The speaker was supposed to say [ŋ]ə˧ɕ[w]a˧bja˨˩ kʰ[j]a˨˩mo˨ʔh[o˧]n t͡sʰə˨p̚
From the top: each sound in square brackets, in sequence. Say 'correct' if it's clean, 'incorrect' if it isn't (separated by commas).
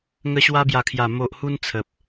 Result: correct, correct, correct, incorrect